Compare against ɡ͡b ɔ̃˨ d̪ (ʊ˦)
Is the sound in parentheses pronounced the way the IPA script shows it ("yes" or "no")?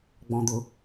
no